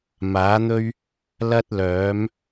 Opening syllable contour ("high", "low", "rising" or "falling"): rising